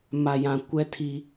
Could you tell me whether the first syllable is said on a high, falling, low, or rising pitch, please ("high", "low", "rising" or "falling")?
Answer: low